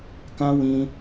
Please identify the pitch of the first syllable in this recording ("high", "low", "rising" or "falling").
high